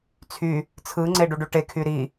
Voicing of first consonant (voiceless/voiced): voiceless